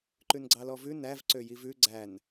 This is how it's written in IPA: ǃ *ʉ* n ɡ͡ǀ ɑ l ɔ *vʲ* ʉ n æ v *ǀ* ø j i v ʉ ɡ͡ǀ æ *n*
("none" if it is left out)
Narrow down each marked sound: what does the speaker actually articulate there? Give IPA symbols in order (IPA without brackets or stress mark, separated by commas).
ʉ, v, ǀ, n